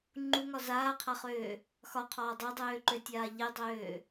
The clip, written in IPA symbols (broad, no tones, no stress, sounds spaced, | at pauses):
ŋ͡ǃ u ŋ ɒ z aː qʰ a χ øː | x ɒ qʰ ɒː dˤ ø dˤ øː ǃ ø tʲ aː ʎ e dˤ øː